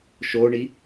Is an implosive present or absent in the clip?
absent